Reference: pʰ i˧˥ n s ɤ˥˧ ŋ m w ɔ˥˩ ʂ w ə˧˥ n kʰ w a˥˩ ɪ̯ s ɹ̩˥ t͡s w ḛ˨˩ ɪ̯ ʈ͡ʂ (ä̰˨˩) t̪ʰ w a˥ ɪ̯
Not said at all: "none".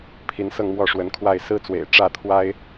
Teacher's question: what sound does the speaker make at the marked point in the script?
ä˥˩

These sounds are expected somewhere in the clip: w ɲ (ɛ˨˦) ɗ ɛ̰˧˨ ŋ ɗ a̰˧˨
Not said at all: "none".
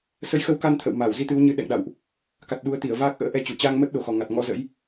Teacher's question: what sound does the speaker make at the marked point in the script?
ɨ˨˦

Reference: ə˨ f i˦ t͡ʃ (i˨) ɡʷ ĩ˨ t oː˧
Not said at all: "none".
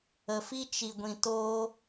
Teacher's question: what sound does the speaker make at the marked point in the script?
i˨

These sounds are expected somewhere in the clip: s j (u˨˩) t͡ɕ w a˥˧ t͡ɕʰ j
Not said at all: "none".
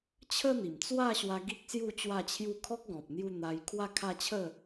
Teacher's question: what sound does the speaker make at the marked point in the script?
u˥˧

